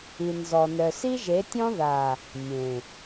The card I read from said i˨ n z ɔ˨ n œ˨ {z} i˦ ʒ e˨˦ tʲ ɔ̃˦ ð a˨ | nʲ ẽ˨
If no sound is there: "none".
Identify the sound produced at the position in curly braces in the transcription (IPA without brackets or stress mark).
s